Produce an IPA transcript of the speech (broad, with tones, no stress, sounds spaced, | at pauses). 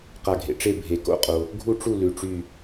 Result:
q a˧˩ ɡʱ ḛ˩ ʈ͡ʂ e˥˨ bʱ e˩ k o̰˧˥˧ qʼ o˩ | ɡʱ u˥˨ ʈ͡ʂ u˥˨ l ʉ˩ ʈ͡ʂ y˧˩